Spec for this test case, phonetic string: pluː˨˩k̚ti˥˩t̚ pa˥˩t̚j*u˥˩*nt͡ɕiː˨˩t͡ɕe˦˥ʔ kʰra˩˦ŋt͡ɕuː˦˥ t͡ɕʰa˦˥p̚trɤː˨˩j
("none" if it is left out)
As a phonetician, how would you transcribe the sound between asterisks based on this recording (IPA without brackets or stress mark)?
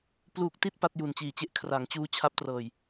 u˨˩